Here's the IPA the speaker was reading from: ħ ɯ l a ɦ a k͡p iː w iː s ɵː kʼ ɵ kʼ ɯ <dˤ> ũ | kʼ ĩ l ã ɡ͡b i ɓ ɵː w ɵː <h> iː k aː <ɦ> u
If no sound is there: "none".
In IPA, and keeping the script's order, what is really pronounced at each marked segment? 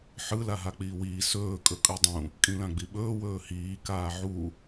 dˤ, h, ʕ

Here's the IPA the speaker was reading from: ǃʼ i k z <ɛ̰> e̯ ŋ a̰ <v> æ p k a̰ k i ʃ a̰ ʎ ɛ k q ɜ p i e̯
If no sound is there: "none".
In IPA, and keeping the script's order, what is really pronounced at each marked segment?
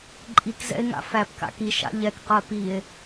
ɛ̰, f

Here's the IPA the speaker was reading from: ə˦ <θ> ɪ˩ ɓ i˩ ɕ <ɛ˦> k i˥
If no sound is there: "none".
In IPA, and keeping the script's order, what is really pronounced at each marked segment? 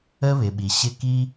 β, ɪ˦

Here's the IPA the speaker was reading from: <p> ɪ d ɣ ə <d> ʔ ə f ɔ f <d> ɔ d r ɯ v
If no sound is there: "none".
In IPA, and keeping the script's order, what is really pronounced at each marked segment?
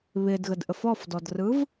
β, d, d

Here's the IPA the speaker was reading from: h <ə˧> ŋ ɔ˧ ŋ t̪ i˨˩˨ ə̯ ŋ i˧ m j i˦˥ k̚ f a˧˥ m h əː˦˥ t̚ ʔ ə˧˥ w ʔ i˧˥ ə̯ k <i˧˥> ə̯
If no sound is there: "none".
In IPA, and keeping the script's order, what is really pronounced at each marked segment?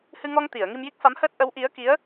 ɨ˧, i˧˥

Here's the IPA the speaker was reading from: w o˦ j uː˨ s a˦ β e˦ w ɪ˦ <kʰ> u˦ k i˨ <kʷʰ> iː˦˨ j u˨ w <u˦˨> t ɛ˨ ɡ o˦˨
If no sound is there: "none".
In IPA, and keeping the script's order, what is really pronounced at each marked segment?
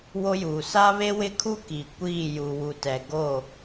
kʰ, kʷ, u˨

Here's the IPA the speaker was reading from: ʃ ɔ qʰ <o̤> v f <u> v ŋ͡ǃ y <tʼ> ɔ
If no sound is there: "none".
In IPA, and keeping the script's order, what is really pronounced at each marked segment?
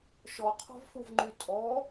ɔ̤, u, tʼ

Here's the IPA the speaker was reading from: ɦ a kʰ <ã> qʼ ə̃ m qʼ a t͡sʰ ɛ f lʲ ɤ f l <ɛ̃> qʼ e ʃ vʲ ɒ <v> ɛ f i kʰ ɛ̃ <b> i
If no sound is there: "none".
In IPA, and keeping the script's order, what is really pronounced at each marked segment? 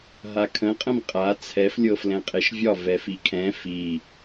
ə̃, ɛ̃, v, f

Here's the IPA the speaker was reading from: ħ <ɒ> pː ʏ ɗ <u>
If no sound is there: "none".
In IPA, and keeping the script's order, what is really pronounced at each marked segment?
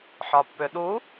ɒ, u

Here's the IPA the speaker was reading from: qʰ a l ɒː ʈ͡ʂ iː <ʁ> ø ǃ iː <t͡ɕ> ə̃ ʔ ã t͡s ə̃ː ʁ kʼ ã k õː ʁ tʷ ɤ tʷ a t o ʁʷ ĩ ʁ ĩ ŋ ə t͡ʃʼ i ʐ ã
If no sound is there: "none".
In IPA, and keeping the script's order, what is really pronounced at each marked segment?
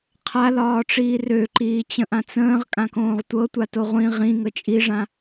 r, t͡ɕ

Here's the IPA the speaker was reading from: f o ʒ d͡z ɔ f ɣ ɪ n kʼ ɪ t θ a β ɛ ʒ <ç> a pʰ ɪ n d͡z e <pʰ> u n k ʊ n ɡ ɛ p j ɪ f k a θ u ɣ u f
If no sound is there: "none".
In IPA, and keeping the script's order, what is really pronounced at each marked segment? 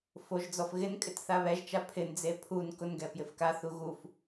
t͡ʃ, pʰ

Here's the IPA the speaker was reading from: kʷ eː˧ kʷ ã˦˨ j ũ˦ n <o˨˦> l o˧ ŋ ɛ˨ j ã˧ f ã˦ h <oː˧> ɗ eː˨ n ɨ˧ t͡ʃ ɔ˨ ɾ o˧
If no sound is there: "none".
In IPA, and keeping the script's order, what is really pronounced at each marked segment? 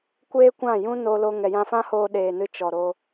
o˧, oː˧

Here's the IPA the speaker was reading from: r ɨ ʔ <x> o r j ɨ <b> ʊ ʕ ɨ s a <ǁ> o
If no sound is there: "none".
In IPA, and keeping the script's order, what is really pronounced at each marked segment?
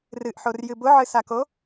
ħ, b, k

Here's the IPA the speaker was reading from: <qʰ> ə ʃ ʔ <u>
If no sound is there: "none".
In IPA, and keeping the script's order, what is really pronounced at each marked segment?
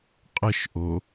qʼ, o

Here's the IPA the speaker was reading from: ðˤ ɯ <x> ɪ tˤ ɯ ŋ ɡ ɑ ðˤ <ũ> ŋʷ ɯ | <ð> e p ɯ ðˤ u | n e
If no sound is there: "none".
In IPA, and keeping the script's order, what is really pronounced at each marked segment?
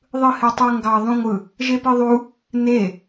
h, ũ, ʒ

